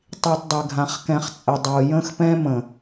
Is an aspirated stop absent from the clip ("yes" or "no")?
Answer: yes